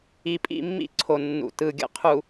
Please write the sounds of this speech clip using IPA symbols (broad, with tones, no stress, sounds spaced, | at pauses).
i˨ pʼ ḭ˦˨ mː ḭ˦ ǀʰ o˨ nː ṵ˨ t ɯ˨ ɡʲ ə̰˨ qʰ u˨